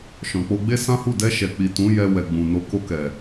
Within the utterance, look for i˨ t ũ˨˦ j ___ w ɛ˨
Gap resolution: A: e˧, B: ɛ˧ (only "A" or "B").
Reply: B